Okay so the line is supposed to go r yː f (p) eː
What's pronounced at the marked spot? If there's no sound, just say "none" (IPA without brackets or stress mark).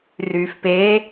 p